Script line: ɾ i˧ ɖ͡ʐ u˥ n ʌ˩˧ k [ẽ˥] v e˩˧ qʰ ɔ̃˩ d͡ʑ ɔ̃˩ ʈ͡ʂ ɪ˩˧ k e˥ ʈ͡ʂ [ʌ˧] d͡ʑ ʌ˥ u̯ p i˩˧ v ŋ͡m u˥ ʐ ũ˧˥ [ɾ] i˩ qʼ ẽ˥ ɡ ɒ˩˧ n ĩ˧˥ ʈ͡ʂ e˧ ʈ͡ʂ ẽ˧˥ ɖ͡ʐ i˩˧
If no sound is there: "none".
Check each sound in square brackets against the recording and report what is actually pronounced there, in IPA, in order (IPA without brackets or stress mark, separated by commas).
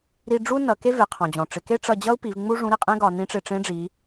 e˥, ʌ˧, ɾ